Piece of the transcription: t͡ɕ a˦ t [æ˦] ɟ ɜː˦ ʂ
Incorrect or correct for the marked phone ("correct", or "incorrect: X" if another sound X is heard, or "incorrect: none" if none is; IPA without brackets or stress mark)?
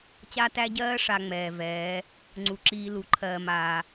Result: correct